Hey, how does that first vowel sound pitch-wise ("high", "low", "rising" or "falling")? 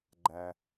low